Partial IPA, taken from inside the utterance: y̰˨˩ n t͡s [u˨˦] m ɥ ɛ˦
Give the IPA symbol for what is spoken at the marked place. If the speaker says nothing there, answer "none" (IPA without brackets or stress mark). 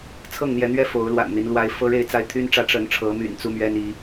u˦